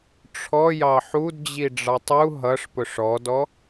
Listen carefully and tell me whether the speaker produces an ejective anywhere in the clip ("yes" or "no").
no